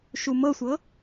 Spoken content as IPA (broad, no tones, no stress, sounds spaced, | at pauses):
ʃ u m ɤ sʷ ɤ